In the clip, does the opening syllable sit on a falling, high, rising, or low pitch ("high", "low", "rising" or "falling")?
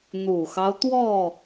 low